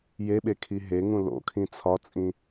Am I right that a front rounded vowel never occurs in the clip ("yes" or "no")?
yes